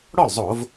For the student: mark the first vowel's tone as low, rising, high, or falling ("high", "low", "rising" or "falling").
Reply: falling